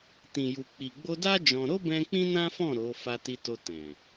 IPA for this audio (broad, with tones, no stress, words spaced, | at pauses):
tĩ˨ju˨k͡pi˨ ɡ͡bo˧da˦ d͡ʒɔ̃˧ ɾo˦bɛ̃˧ k͡pĩ˦nã˦ fɔ̃˦˨ ɾo˨˦ fa˧ti˧to˧ tɛ̃˨